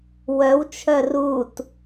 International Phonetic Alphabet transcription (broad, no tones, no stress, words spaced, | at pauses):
wœwt͡ʃʰœ rut